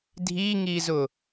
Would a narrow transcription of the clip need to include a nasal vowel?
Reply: no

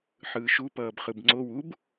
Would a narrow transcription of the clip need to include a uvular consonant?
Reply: yes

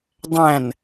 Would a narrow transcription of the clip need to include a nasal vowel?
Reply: yes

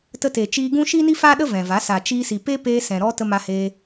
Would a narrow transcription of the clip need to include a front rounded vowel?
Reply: no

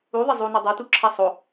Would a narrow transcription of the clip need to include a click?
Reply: yes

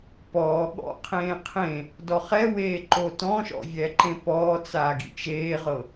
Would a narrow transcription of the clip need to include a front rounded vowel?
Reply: no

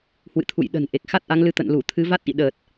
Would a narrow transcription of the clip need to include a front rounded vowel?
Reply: no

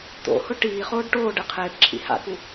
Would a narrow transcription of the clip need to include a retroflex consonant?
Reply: yes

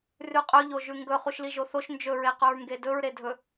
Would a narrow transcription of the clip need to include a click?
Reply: no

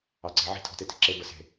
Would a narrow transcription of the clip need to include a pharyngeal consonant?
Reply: yes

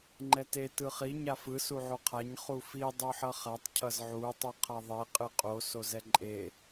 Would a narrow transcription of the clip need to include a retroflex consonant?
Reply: no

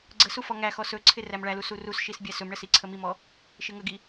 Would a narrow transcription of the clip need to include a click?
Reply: yes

